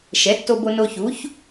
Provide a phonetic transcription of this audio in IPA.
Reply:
ʃ ɛ˩˥ tː o˧ b o˧ n o˧ ç u˩˥ ç

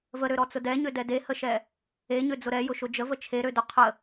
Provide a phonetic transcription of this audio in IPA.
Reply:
v ə ɾ ø ɾ ɔ t͡s ʊ d ɛ ɲ ø d ɛ d e h ə ʃ ɛ | e ɲ ø d͡z ʊ ɾ ɛ j ʊ ʃ ʊ d͡ʒ ə v ə t͡ʃʰ e ɾ ø d ʊ qʰ ə

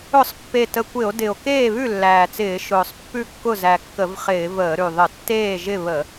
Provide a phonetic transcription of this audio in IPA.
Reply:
ʊ˧˩˧ sˤ pː e˨˩ t ə˨˩ kʷ ɪ˧˩˧ o̯ d ɪ˨˩ o̯ k eː˥˩ β ʉ˥˩ lː æː˨˩ t͡s ɪː˧˩˧ ʃ ʊː˨˩ sˤ pː ʉ˥˩ kː ʊ˥˩ z æ˨˩ kː ə˧˩˧ v χ ɪː˧˩˧ v əː˧˩˧ ɾ ʉ˨˩ ðˤ ə˧˩˧ tː eː˥˩ ʒ ɪ˥˩ β ə˧˩˧

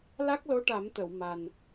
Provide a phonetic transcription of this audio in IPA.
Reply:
l a˦˥ k̚ l o˧˥ ʈ a˨˩˦ m t̪ ə˨˩˨ w m a˨˩ n

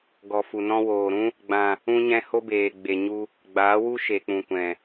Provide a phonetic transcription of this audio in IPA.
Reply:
ɡ ɔ˨ f u˨ n ɔ̃˧ w oː˨ ɾ ũ˦ | ɡ͡b ã˨ | ũ˦ ɲ ɛ̃˦ h o˦ b eː˨ ɡ͡b e˨ ɲ u˧ | ɡ͡b aː˨˦ w u˦ ʃ e˨ k͡p ũ˨ kʷ ɛ̃˨

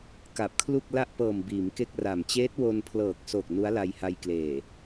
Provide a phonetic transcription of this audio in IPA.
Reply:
k a˨˩ p̚ kʰ l u˥˩ k̚ l a˥˩ ʔ p ɤː˨˩ m b iː˩˦ m k e˥˩ k̚ r a˨˩ m t͡ɕ eː˦˥ t̚ w o˧ n pʰ l ɤː˨˩ k̚ s o˨˩ k̚ n u˦˥ a̯ l a˧ j h a˧ j k l eː˨˩

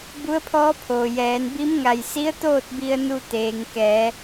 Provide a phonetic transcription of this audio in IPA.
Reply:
b u˧˥ ə̯ pʰ ɔː˧˥ pʰ oː˩ j ɛː˩˧ n b i˧˥ m ŋ a˧˩ j s i˧˥ ə̯ t̪ oː˥˨ t̚ b i˧ ə̯ n u˧ t̪ eː˩ ŋ k ɛː˩˧

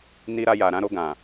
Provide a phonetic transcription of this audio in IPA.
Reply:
n i˧ ɾ a˧ j a˨ ɾ ã˨˦ ɾ o˧ ɡ ã˨

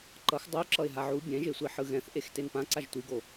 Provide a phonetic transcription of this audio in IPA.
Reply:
ǃ ʌ x dˤ u ǁ ʌ ɪ̯ ɦ a ʕ u bʲ ɛ̃ ʒ e sʷ i ħ ɯ ɣ ɛ̃ θ ʔ e x t e n p ã ǀ a ʒ tʷ i ɡ o

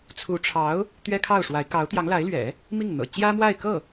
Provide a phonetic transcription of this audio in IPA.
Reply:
t͡sʰ u˧˥ ʈ͡ʂʰ ɑ˧˥ ʊ̯ | t̪ ɥ ɛ˥ kʰ ɑ˥˩ ʊ̯ ʂ w a˧˥ ɪ̯ k ɑ˧˥ ʊ̯ t̪ j ɑ˧˥ ŋ l a˧˥ ɪ̯ l ɥ ɛ̰˨˩˦ | m i˥˩ ŋ n̪ ɤ̰˨˩ t͡ɕ j ä˥ m w a˥˧ ɪ̯ k ɤ˥˩

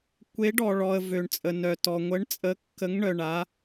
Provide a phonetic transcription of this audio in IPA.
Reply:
kʷ e˧˥ ɖ ɔ˨ ɭ ɔ˨ ə̯ v ø˨ ɳ t͡sʼ ə˨ n œ˨ t ɔ˨ ŋʷ ə˧˥ ɳ t͡sʼ ə˧˥ kː ə˧˥ ŋ ɳ œ˨ ɳ a˧˥

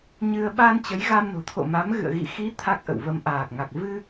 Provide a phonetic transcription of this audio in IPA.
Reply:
ɲ ɨ˧ ə̯ ɓ a˧ n t͡ɕ ə˨˦ j ɣ a˧ m n o̤˨˩ t̪ʰ o̰˧˨ m a˨˦ m ɣ ɨ̰˧˨ ə̯ ɣ ḭ˧˨ x i˨˦ t̪ʰ a˦˥ k̚ ʔ ə̰˧˨ w v ə˧ m ʔ aː˨˩ k̚ ŋ a˨˩ k̚ v ɨ˧

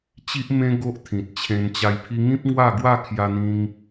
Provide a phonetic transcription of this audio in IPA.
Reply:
t͡ɕ i˦ ʔ m ẽ˦ ɡ o˦ ʔ t̪ʰ ĩ˨ t̚ t͡ɕʰ ẽ˧ n t͡ɕ a˧ j pʰ i˧ ŋ ĩ˦ p̚ ŋ w a˥˧ ɡ w a˥˧ kʰ j a˧ n̪ ĩ˧ ŋ

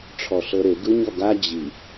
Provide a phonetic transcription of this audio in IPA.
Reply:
ʈ͡ʂʰ ɔ ɬ ɤ ɾ e ɡ ɯ ɲ ɔ ɡ a d͡ʑ i

